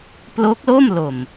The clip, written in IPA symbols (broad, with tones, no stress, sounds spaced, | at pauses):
p l o˦˥ k̚ l o˥˩ m l o˨˩ m